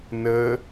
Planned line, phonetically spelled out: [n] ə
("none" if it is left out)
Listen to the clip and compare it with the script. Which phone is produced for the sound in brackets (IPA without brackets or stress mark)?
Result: n